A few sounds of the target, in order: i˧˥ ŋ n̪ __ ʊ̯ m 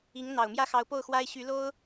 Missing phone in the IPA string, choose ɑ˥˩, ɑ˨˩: ɑ˨˩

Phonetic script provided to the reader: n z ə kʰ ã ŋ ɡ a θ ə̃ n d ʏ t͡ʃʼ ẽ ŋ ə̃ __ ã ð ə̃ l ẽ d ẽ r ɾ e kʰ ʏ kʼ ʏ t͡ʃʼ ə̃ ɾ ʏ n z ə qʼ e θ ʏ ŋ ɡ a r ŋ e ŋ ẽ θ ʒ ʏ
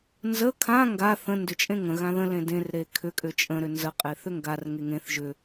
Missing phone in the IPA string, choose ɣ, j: ɣ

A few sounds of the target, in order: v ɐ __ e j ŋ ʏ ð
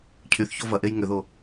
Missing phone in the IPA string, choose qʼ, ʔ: ʔ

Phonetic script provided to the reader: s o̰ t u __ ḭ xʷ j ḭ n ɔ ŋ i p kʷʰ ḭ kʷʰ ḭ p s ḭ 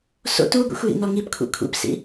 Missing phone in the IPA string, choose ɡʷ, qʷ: ɡʷ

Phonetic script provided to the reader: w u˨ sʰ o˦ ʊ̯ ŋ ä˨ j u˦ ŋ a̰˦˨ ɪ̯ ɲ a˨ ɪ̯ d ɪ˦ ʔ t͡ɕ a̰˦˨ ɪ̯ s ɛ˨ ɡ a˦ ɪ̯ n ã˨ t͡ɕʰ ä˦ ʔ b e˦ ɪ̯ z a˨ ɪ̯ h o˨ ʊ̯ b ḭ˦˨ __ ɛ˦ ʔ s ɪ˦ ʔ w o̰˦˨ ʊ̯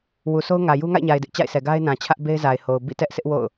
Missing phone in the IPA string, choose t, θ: t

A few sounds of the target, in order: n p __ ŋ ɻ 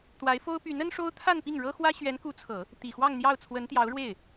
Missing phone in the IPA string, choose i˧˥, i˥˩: i˥˩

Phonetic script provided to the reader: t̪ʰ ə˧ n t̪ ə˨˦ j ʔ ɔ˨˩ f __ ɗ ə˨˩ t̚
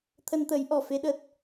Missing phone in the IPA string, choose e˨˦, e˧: e˨˦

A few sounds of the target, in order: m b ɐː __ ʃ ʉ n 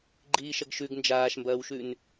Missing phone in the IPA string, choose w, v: w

